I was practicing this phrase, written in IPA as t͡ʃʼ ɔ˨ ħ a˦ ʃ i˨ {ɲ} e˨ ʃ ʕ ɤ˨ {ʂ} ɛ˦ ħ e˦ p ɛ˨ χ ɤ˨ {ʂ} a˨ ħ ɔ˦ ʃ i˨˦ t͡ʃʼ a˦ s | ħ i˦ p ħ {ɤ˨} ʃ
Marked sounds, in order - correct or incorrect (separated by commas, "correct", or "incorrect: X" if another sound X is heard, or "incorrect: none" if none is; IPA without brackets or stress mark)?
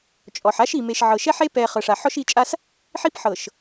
incorrect: m, incorrect: ʃ, correct, correct